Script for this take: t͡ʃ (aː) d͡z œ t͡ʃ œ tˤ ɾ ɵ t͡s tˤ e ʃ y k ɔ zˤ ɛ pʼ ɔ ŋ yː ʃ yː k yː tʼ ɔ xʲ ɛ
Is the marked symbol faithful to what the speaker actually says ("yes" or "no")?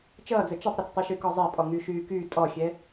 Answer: no